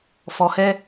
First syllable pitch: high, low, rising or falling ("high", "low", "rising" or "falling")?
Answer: low